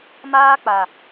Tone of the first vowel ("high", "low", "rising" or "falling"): high